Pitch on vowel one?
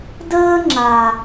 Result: high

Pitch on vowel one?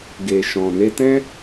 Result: low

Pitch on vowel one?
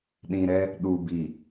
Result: low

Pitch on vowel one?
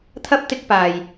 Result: high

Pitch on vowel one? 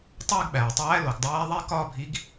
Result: falling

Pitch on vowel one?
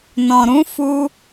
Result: low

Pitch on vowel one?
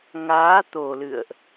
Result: rising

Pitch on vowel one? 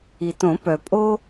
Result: low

